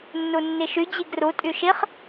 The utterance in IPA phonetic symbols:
nː u nː i ʃ y d͡ʑ i ɡ r u tʼ y ʃ i χ

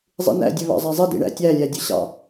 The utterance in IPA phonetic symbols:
zˤ ḭ n æ̰ dʲ ɵ β ɑ̰ zˤ æ zˤ e d ḭ ɳ æ̰ tʲ æ lʲ æ dʲ ɵ ɕ ɑ̰

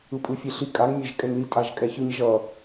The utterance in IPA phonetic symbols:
ɯ pʼ ɯ fʲ e ɬ i kʼ a ŋ mʲ e ʒ kʼ ɛ ŋ l i tʼ a ʒ kʼ ɛ ç ɯ ɲ ʒ ʌ

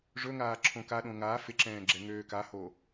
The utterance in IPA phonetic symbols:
ʐ ɵ ŋ aː ǁʰ õ k a ɗ õ ŋ aː f ɪ ǁ ɛ̃ː ɡ͡ǁ ɛ ŋ øː k a h o

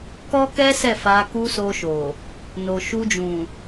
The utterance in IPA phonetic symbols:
k ɔ˦ k ɛ˦ s ɛ˦˨ f a˧ k u˦ s o˧ ʃ o˨ | n o˨ ʃ u˧ d͡ʒ ũ˨

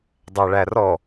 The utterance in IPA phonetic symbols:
dˤ æ ɭ æ r ɔ

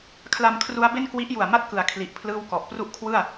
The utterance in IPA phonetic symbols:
kʰ l a˧ m kʰ r u˦˥ a̯ b e˥˩ n k w i˦˥ ʔ j u˨˩ a̯ m a˥˩ t̚ k ɯ˩˦ a̯ kʰ l i˨˩ ʔ pʰ l ɯː˥˩ w k ɔ˨˩ ʔ p r u˥˩ ʔ kʰ w ɯ˥˩ a̯

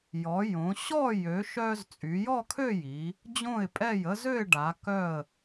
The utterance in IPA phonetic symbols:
j ɔ˩˧ j õ˩˧ ɕ ɔ˥˧ j ø˩˧ ʃ œ˧ z t͡sʼ y˩˧ j ɔ˥˧ kʰ ø˥˧ j i˩˧ | d͡ʑ õ˧˩ ɪ̯ pʼ ɛ˧˩ j ə˧ z ø˥˧ ɪ̯ ɖ a˩˧ k œ˧˩ ə̯

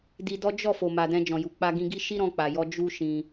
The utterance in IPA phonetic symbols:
d i˧ d ɔ˦ d͡ʒ ɔ˦˨ f o˨ m a˨ d ɛ̃˧ d͡ʒ ɔ̃˨ j u˨ k͡p a˧ ɡ ĩ˧ ɡ i˦ ʃ i˦ ɾ ɔ̃˧ k͡p a˨ j ɔ˧ d͡ʒ u˦ ʃ ĩ˧

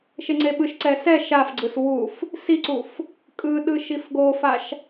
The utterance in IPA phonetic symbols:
ʃ e ŋ͡ǀ e ɓ ɯ ʃ ǀ ɛ s ɛ ʃ a f ɡ͡ǀ ɯ s w u f | s i ǀ u f | kʼ ɯ ɗ ɯ ʃ i f ɡ o f a ʃ

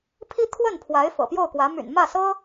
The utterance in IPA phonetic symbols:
pʰ i˥ t̪ʰ w ə˥˩ n pʰ w a˧˥ ɪ̯ f ɤ̰˨˩ p j o˥˩ ʊ̯ k w ä˧˥ m y̰˨˩ n m ä˥˩ s ɤ˥

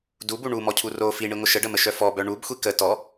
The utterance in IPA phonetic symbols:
d u b u ɳ u m ɔ cʰ u r o f i ɳ i ŋʷ ə ʃ ə ɖ ə m ə ʃ œ f ɔ b œ ɳ u b xʷ i k ə t ɔ

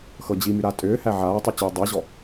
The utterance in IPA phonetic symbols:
x ɤ d͡ʑ i m y ɾ a tʼ ʏː h æ ʕ aː tˤ y t͡ɕ ʏː dˤ æ ʑ ɔ

